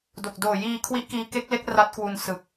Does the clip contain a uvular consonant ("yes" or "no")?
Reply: no